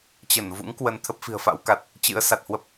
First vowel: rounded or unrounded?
unrounded